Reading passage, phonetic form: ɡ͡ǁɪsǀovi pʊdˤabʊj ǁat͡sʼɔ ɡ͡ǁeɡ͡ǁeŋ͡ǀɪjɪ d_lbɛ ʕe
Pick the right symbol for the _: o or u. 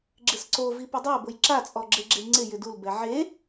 u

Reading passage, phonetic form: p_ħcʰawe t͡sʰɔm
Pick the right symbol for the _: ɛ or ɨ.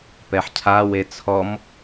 ɛ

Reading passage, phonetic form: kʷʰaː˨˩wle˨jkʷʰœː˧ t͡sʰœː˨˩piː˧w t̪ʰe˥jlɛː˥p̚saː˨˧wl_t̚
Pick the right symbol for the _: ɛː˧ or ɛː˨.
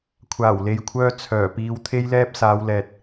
ɛː˨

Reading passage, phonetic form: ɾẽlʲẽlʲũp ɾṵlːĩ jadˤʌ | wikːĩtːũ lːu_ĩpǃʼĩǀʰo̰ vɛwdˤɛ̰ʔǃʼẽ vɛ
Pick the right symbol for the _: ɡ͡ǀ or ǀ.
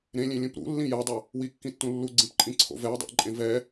ɡ͡ǀ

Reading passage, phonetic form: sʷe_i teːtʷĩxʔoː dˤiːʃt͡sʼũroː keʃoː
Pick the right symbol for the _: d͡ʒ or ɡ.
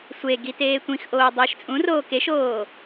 ɡ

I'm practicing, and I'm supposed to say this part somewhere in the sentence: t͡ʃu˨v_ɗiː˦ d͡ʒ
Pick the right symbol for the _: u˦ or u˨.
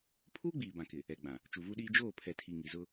u˦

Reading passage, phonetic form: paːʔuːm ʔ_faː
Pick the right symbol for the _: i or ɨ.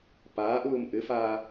ɨ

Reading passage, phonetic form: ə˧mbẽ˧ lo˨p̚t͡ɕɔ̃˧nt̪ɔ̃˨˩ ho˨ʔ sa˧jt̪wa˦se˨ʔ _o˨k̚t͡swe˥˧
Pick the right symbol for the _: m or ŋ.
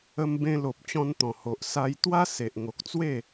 ŋ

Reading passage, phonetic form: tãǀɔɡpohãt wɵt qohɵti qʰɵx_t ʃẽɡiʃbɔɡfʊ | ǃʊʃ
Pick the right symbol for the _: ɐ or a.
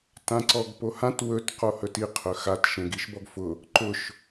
a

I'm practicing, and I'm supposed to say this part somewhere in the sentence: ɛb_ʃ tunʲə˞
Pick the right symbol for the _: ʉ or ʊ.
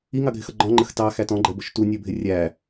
ʊ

